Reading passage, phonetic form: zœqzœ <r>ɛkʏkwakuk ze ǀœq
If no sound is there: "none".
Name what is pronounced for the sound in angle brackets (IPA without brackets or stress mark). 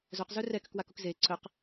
r